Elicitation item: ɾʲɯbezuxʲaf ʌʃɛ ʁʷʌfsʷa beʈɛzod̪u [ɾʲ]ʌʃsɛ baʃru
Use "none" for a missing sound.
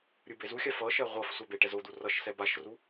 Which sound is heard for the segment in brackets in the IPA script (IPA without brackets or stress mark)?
r